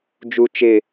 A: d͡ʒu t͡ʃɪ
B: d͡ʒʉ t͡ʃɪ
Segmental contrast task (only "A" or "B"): A